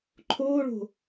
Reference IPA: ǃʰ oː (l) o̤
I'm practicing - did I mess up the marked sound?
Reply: yes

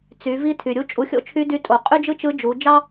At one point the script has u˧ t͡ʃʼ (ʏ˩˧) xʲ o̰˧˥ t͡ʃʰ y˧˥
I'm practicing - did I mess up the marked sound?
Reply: yes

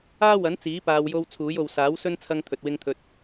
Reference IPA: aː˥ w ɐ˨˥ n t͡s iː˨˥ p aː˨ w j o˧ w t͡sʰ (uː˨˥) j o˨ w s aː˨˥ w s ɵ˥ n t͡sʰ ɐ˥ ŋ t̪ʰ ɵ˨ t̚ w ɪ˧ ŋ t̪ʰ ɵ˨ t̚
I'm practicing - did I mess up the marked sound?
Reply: no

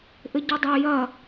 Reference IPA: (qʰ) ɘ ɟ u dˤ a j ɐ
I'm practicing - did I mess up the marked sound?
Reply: yes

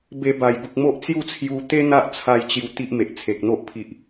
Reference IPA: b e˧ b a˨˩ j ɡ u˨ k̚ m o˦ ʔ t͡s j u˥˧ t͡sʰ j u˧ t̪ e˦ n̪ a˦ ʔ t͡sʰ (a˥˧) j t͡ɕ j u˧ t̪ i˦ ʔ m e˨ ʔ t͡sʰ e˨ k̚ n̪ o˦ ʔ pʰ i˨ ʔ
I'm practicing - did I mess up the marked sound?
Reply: yes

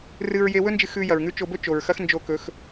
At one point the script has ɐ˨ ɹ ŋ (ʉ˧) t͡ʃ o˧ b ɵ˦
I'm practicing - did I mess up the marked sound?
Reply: yes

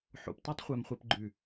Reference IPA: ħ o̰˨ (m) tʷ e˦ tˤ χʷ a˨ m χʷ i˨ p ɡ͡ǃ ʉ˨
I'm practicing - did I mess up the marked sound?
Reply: yes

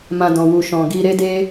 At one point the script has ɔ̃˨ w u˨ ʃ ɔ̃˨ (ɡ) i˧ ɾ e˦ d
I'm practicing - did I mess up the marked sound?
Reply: no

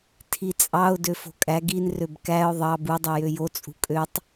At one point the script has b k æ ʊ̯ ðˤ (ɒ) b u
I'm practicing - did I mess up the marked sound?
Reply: yes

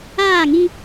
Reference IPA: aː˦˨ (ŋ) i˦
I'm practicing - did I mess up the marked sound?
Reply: no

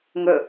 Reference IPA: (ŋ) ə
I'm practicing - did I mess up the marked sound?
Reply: no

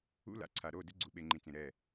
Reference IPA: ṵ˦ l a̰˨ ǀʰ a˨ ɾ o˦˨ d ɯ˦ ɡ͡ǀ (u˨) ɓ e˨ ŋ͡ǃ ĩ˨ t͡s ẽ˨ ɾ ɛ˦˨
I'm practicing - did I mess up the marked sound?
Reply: no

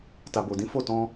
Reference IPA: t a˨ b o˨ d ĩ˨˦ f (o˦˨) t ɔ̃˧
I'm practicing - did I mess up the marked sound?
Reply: no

